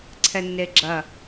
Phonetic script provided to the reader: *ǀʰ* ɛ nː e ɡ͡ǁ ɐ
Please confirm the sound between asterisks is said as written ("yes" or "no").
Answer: yes